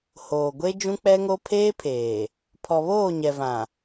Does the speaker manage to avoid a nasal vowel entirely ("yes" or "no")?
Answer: no